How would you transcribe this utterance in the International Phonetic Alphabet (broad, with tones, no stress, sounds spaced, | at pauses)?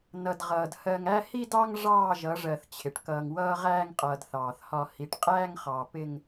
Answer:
n ʌ˨ d ʁ ʌː˨ d h ɜ˨ ŋ æ˦ h i˦ d ɑ˦ ŋ ʐ ɑː˦˨ ʒ ʌ˨˦ ʐ ɜ˨ θ t͡ɕʰ ɪ˨ ʈ k ʌː˨ ŋ w ʌː˦ ʁ æː˦ ŋ qʼ ʌː˨ d θ ɑː˨ θ h ɒ˦ h i˨ ʈ qʼ æː˦ ŋ χ ɑ˨ p ɪ˦ ŋ